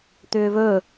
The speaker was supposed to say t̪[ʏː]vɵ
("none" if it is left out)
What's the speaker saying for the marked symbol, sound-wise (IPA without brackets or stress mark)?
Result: ʏː